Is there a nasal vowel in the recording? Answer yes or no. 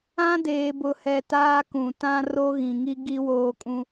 yes